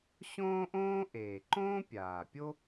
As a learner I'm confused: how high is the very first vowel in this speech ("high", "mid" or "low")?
mid